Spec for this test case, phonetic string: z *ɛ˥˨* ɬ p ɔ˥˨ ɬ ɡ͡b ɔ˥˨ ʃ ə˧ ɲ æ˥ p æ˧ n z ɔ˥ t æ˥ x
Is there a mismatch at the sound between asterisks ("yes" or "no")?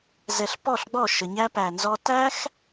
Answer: yes